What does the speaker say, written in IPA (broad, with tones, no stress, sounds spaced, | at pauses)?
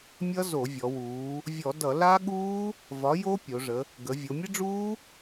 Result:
mʲ ʌ˦˥ z o˧˩˧ vʲ ɔ˩˧ w uː˩˧ | vʲ ɔ˧˩˧ d ʌ˧˩˧ l a˦˥ ɠ uː˦˥ | v ɒ˨˥ j o˦˥ pʲ o˩˧ ʐ ə˩˧ | ɡ ə˩˧ vʲ o˩˧ mʲ ə˦˥ ɖ͡ʐ uː˦˥